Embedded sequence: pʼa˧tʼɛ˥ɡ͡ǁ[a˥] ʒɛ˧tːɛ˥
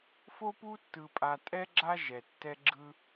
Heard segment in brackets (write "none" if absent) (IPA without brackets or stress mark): a˥